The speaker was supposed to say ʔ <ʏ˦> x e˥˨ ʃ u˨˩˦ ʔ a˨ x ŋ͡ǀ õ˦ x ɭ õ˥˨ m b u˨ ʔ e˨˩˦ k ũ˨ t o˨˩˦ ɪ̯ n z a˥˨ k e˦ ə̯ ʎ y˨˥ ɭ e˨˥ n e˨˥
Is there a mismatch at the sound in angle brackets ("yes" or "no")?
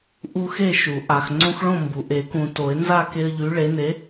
yes